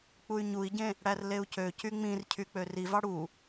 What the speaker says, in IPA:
k͡p u y̯ ɲ u i̯ ɟ ẽ | ɽ æ r l e u̯ c ø c y ŋ͡m ĩ r cʰ y k͡p ø r i v ɑ ɽ u

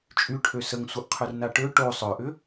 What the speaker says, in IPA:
t͡ʃʼ y ʈʰ ø s ə ŋ sʷ ə ʔ qʰ œ r n a ʈ ø ʈ o sˤ œ ʔ ʏ

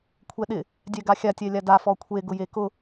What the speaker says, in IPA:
kʷʰ ɛ ɗ ɪ | dʲ ɛ ɡ a xʲ a tʲ ɛ lʲ a d a f ɔ kʷʰ e ɡ ʊ j e k ʊ

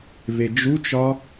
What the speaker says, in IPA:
v e d͡ʒ u t͡ʃ ɒ

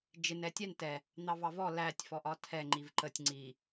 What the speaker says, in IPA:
d͡ʒ ɪ n ɛ tʲ ɛ n t ɛ | n̪ ɑ v ɑ v ɔ l æ tʲ f ɔ ʔ ɒ tʰ ɛ ŋ͡ǃ i v ǃ ə tʲ ŋ͡ǀ i

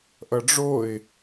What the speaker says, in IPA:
ʔ ʌ ɖ͡ʐ o ɪ̯

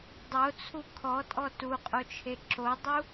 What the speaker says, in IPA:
dˤ o t͡sʰ u kʰ ɔ tʼ ɔ t u qʼ o t͡ʃʰ e ǁ o dˤ u

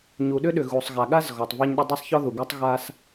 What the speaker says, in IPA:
ɲ u˩ ɗ ʏ˥ ɗ ʏ˩ ɣ u˩ sˤ ɣ a˩ ɠ a˥ z ɣ ɔ˩ tˤ v a˥ ɲ ɗ ʏ˥ dˤ a˥ sˤ ç ɔ˥ ð u˩ ɡ a˥ tˤ ɣ a˥ s

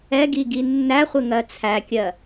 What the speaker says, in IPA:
ɛ ɡ i ɡ i nː æ χʷ ɪ ŋ ɜ t͡sʰ æ kʲ ɜ

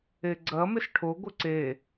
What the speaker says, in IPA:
e ɡ͡ǀ ɐ m ɪ s ʈʰ o ɡʷ ɪ ǀ e

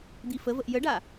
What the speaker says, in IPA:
d̪ i f ə v ə ʔ j ə ɖ a

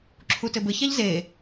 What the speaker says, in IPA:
ǁʰ u t ɘ b ɘ ç a ʎ z e

